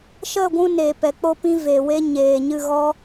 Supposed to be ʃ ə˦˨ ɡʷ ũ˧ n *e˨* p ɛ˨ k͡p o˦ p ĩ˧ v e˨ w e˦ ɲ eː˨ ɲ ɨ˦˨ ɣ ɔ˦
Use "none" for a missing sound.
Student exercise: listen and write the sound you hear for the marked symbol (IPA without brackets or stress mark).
e˨